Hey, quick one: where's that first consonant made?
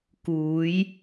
velum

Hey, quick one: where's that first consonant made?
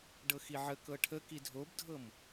retroflex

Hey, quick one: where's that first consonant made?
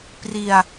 lips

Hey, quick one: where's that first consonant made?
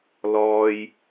tongue tip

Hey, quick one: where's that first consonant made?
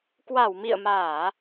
velum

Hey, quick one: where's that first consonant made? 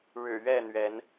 retroflex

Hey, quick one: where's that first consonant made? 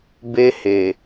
lips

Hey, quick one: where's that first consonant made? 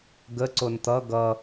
velum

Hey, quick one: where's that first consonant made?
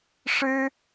retroflex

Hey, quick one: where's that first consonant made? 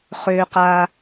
uvula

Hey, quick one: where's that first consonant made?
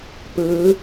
lips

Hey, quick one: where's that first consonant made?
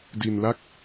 tongue tip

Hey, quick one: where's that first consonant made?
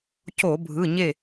palate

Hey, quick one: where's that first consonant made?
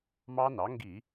lips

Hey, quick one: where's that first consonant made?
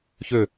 palate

